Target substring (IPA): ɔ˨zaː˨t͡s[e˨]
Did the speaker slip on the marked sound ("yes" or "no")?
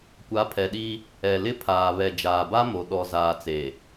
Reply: no